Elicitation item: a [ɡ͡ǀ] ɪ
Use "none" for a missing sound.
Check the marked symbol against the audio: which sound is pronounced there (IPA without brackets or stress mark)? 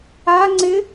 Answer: ŋ͡ǀ